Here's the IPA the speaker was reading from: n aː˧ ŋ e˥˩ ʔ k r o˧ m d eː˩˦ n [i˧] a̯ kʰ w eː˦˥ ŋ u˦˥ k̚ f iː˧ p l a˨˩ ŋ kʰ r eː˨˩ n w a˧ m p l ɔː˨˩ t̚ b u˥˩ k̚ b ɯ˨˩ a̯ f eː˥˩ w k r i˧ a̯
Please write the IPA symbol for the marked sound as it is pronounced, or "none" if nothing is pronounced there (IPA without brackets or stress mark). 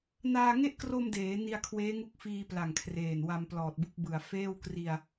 i˧